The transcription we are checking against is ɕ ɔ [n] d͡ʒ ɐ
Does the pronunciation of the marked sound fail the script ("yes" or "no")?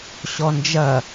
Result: no